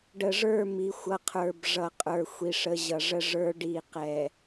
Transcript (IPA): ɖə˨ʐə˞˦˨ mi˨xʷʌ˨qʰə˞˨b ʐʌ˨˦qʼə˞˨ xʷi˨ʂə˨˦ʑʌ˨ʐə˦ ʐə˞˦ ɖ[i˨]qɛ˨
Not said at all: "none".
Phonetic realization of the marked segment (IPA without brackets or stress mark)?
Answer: i˦˨